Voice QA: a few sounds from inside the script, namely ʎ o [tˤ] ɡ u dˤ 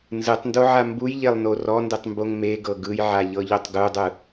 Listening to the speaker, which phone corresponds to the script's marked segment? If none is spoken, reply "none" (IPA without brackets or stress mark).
tˤ